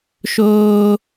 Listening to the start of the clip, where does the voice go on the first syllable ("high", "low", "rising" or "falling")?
high